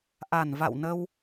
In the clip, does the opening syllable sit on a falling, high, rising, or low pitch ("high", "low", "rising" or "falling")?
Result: low